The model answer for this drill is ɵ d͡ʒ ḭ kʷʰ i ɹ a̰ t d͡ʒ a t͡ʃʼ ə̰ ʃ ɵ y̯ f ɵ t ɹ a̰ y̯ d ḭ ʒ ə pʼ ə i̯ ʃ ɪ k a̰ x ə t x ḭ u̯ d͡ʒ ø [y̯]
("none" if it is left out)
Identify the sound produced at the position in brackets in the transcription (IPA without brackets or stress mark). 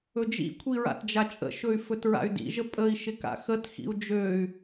y̯